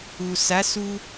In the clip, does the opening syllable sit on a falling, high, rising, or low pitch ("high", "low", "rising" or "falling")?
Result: low